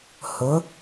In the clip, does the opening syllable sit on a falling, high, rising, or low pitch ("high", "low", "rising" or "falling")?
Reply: rising